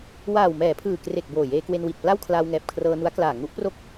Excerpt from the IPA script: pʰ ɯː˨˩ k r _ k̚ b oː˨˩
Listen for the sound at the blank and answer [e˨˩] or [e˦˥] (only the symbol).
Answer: e˨˩